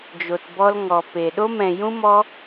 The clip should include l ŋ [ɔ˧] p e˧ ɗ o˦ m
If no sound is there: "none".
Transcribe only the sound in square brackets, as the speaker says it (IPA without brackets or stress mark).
ɔ˧